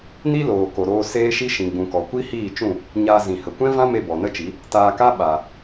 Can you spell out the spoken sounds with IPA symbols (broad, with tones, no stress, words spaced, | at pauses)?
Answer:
ni˦loː˨ko˨ɾoː˧ seː˦ʃi˦ ʃĩ˨ɡ͡bũ˨ kɔ˨kʷi˦hiː˦˨t͡ʃũ˦˨ | ɲaː˧ zĩ˨hə˨ kʷɛ̃˦vã˦me˧ bɔ˨nə˦t͡ʃi˨˦ | taː˧ka˦ ɓa˨